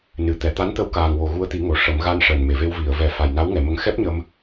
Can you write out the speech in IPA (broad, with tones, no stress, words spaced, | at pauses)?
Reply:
nɨ˨˩˨t̪ɛ˨˩ t̪a˧˥n t̪ə˧˥wkaː˨˩ŋ wo˨˩ɣu˧ə̯t̪i˨˩˦ ŋo˨˩ʂə˨˩˦m ɣa˧nʂəː˨˩nme˨˩˨ve˧w vi˨˩˨ə̯vɛ˨˩˦ fa˨˩jna˧˥wŋɛ˨˩˨mə˧˥ŋ xɛ˦˥p̚ɲə˧m